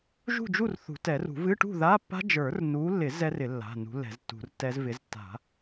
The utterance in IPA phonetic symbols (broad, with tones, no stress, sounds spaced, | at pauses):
ʒ ṳ˥˨ d͡ʒ u˥˨ r θ ṳ˨˩˦ t ɛ˨˩˦ r ṳ˨˩˦ v ɨ˧˥˧ ʈ ṳ˥˨ ð a˧˥˧ pː a̤˦˥ d͡ʒ ə˞˨˩˦ r n u˨˦ lː ɪ˨˩˦ z ɛ˦˥ r ɪ˨˩˦ lː a̤˩˧˩ n ṳ˨˦ lː ɛ̤˨˩˦ z tː ṳ˨˩˦ r tː ɛ˦˥ z v ɪ˨˦ z tː a̤˨˩˦